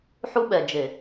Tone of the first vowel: high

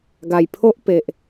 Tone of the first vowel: low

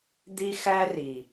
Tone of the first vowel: high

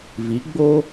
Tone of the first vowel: rising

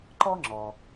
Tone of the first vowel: high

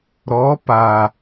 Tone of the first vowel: rising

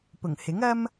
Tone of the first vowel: low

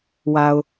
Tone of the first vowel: low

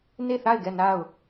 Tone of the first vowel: falling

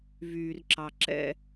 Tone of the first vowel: low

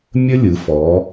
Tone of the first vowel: high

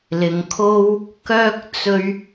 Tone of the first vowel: low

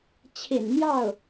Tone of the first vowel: low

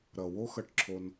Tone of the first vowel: low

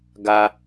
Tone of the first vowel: high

